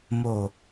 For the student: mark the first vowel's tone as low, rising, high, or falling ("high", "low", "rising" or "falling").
low